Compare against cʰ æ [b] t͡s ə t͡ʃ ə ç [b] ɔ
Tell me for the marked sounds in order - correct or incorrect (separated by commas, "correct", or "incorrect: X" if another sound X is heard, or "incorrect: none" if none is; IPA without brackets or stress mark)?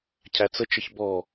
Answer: incorrect: none, correct